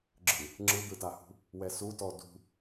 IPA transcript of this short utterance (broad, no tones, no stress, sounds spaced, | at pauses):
ɡ͡ǁ ɯ | ŋ͡ǁ ɯ d̪ ɯ t a h ṳ | w ɛ s u t ɔ d ṳ